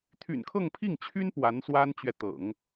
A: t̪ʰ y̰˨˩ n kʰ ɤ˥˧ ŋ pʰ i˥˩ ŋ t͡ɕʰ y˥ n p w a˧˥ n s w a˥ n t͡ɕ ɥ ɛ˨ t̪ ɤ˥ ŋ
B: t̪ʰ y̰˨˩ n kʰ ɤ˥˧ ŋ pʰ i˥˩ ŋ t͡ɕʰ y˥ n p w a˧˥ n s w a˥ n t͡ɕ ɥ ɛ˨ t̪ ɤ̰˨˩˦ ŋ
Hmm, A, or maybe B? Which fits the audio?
B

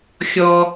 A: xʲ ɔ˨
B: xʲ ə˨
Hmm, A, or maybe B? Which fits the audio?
A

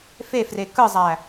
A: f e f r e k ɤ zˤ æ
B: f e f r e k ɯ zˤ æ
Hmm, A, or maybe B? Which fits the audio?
B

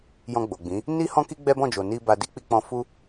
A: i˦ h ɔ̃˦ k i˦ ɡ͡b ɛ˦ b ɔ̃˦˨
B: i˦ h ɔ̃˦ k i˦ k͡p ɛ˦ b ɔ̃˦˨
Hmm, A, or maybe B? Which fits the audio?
A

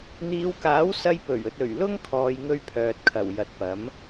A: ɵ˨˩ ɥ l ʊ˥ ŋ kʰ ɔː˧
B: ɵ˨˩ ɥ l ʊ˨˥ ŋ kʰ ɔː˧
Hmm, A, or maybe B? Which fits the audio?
A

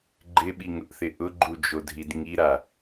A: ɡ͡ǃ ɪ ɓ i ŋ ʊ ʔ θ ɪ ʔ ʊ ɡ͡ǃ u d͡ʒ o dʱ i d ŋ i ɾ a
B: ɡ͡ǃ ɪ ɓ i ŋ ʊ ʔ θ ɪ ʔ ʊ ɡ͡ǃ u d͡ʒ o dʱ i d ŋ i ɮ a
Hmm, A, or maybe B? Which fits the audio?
A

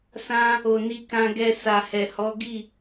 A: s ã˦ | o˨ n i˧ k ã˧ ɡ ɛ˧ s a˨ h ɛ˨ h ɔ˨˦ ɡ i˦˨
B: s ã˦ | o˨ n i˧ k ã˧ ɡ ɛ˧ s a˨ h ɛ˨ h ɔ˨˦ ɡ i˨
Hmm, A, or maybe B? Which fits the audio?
A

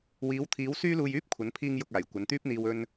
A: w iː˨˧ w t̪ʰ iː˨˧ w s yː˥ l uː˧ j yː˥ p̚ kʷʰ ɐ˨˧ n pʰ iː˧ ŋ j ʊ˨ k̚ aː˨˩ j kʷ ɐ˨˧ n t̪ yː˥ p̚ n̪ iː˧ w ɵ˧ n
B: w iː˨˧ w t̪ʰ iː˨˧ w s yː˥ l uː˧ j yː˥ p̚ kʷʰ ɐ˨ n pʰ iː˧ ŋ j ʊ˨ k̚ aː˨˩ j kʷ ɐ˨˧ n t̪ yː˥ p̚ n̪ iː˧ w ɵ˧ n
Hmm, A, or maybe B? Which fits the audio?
A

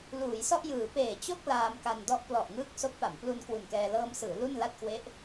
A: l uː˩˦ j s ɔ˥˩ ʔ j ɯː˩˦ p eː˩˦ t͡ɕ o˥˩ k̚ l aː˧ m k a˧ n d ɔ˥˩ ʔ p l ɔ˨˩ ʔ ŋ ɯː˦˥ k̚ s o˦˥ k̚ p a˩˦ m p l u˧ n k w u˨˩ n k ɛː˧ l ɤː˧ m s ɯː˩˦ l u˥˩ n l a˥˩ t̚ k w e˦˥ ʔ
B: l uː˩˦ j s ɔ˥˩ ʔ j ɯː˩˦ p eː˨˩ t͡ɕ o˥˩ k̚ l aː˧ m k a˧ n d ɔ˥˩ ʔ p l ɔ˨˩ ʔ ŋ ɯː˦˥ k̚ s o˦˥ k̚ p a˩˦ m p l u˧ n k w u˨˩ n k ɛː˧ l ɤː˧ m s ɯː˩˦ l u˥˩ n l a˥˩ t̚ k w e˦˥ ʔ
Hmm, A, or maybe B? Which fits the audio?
B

